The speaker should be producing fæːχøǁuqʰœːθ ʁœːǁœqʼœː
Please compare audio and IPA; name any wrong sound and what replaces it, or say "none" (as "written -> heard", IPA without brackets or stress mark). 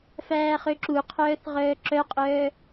none